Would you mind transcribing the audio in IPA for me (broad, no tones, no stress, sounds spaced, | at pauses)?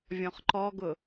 vʲ ɔ̃ χ ǃ ɔ ɡ ʊ